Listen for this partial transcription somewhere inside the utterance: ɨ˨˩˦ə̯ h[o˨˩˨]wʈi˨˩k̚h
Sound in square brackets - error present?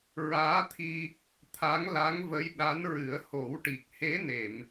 yes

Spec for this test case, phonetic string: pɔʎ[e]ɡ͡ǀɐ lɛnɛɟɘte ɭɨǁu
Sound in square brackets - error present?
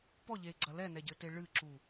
no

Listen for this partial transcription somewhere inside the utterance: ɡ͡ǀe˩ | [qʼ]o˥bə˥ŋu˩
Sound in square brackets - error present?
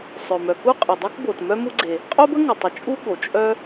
no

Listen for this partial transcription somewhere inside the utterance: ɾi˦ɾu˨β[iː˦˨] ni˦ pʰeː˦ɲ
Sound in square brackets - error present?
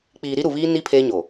yes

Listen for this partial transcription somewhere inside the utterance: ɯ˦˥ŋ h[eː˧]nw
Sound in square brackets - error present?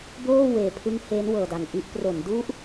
yes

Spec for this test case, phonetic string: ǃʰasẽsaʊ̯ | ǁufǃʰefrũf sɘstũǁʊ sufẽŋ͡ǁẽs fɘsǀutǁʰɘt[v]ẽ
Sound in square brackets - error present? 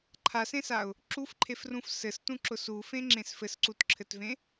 no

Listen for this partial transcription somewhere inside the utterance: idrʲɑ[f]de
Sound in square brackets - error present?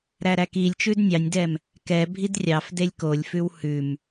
no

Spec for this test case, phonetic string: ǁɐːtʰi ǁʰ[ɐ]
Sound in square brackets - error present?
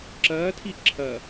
no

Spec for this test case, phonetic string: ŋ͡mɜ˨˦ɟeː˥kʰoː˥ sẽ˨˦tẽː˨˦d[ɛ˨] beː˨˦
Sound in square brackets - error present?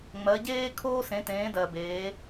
yes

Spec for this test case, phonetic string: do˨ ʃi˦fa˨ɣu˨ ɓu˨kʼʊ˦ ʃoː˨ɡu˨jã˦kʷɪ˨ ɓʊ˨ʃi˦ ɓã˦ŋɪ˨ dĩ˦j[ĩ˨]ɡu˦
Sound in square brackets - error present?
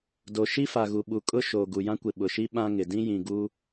no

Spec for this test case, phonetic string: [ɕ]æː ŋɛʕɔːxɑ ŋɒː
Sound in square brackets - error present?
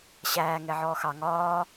no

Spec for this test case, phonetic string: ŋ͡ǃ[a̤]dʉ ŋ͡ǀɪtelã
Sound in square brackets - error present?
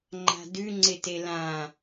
no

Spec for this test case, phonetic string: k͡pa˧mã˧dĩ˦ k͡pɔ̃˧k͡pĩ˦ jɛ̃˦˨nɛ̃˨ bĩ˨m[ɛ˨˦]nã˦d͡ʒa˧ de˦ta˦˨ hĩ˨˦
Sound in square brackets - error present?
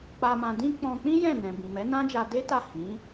no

